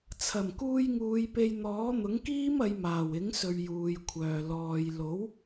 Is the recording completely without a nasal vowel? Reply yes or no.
yes